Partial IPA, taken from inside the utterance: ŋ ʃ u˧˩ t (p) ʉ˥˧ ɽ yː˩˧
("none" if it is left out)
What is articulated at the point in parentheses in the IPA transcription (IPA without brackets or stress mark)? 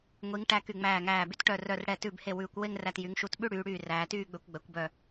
ɓ